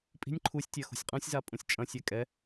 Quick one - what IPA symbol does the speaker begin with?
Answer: pʼ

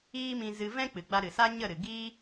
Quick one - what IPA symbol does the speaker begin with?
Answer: iː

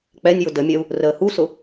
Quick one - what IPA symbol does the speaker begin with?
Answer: k͡p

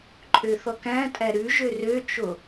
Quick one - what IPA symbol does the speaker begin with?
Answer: ǃʼ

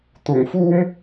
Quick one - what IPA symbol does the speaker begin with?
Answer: t̪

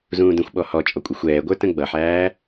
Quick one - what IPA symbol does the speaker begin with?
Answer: z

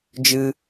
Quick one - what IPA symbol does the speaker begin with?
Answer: d͡ʒ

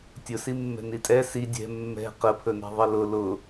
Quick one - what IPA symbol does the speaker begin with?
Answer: tʲ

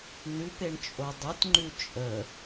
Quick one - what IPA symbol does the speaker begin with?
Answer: n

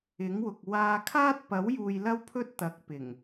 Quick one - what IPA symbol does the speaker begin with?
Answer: ɪ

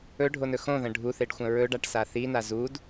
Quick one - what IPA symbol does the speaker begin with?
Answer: ɵ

